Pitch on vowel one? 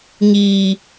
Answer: low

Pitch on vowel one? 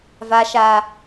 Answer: low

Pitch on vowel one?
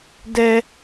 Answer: high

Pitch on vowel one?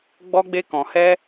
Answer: high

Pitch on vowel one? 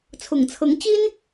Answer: low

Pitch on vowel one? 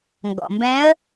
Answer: low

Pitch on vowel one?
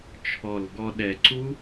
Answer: low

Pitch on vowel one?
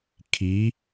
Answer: rising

